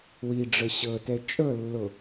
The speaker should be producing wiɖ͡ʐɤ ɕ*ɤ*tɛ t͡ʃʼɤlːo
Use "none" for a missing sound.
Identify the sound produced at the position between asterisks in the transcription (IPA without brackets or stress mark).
ɤ